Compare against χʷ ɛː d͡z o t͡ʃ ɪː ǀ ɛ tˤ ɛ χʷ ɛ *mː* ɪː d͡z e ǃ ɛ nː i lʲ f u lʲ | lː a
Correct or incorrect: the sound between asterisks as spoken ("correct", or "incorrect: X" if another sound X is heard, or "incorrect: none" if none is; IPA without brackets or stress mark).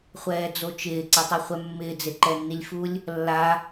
correct